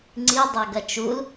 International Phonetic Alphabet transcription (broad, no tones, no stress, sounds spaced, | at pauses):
ŋ͡ǀ i dˤ ɐ ɡ ɐ t͡ʃ u l